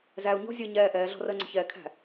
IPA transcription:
z æ u̯ ɲ ɔ̤ zʲ əː ɲ ɛː ʔ ɛː ɮ ɔ̤ r əː ŋ͡ǀ ə̤ ç ɛː kʰ æ̤

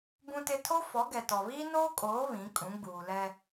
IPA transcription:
b ũ˦ t ɪ˦ tʰ o˦ f ɔ˨˦ ɡ ɛ˨ t ɔ˨ β iː˦ n oː˦ kʼ oː˨˦ β ĩ˨˦ kʼ ũ˨˦ ɡ͡b uː˨ l ɛ˦

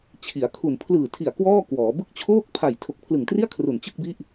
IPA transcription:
t͡ɕʰ i˩˦ a̯ kʰ u˨˩ n pʰ l ɯː˨˩ tʰ i˨˩ a̯ k w ɔː˥˩ k w ɔː˩˦ b ɯ˦˥ k̚ t͡ɕʰ oː˥˩ k̚ pʰ a˨˩ j tʰ o˨˩ k̚ pʰ l ɯ˨˩ ŋ t r i˥˩ a̯ kʰ r u˨˩ n t͡ɕ ɯ˥˩ k̚ b i˥˩ ʔ

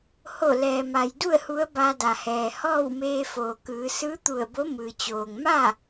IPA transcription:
h o˧˩ l ɛː˩ m a˩ j d u˥˨ ə̯ h u˧˥ ə̯ b a˧ d a˩ h ɛː˩ h ɔː˥˨ w m eː˧ f oː˩ k ɯː˩˧ s ɯː˧˥ t̪ u˧˩ ə̯ b o˧˥ m ɯː˩ t͡ɕ oː˩ ŋ m a˥˨

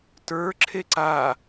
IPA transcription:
t ə˞ ǁʰ e ǀ a

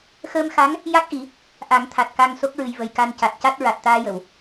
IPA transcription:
x əː˧ m x a˧˥ ŋ | j a˦˥ k̚ ʔ i˨˩˦ | ʔ a˨˩˦ ŋ t̪ʰ a˨˩ t̚ k a˧ ŋ s o˦˥ k̚ ɹ ɨ˨˩ j v ə˨˩ j k a˧ n c a˨˩ t̚ c a˦˥ t̚ ɹ a˨˩ t̚ t̪ aː˧ j ə˨˩˨ w

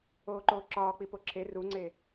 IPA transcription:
oː ǃ oː ǁ ɒː k͡p i p o ǁʰ e r u ŋ͡ǀ e

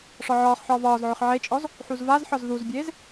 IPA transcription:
ʂ ɒ ʕ ɒː χ ħ ɒː v ɒː z ʕ ʏ χ ʕ e t͡ʃʼ ɔ z | ħ u z v a z ħ ɒ z ð u z bʲ eː z

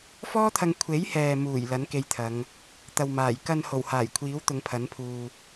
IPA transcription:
f ɔː˥ t̪ʰ ɐ˧ ŋ kʷʰ e˨˥ j h ɛː˨ m uː˨˩ j l ɐ˨˥ n k e˧ j t̪ʰ ɐ˨˧ ŋ | t̪ ɐ˨ w m aː˨˩ j k ɐ˧ n h o˨˩ w h aː˨˩ j kʷʰ iː˨˥ w t̪ ʊ˨˧ ŋ pʰ ɐ˨˥ n pʰ uː˧

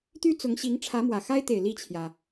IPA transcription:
t̪ y˥ t͡s ʊ˧˥ ŋ ɕ i˧˥ ŋ ʈ͡ʂʰ ä˧˥ m w ä˨˩ x a˥ ɪ̯ t̪ e˨˩ ɪ̯ l i˥˩ t͡ɕʰ j ä˩

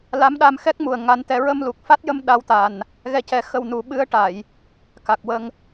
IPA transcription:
l a˧˥ m ɗ a˧ m x ɛ˦˥ k̚ m u˨˩ ə̯ ŋ a˧˥ n t̪ ɛ˧˥ ɹ ə˧ m l u˨˩ k̚ f a˦˥ t̚ j ə˧ m ɗ a˧˥ w t̪ a˨˩ n | ɣ ɛ˧ c ɛ˧ x ə˧ w n u˨˩˦ ɓ ɨ˧˥ ə̯ ʈ a˨˩˨ j | k a˨˩ k̚ w ə˧ ŋ

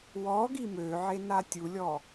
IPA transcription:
w ɔ ɡ i m ø ʕ e n a tʲ u lʲ ɔ

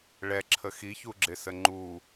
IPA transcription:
ɭ ɛ ǁʰ ə x i ç u ɡ͡ǁ ɪ s ə ŋ͡ǃ u

